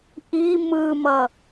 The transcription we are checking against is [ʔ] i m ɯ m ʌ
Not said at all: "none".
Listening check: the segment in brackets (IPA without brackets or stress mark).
ʔ